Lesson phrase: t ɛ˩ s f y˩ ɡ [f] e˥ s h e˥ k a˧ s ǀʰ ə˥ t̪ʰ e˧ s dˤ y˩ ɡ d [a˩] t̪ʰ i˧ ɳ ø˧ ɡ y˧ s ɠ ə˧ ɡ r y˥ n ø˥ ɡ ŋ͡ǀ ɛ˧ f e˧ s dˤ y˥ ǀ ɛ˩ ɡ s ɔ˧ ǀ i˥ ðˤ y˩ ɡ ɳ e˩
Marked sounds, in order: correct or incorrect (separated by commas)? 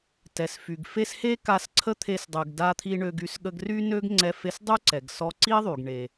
correct, incorrect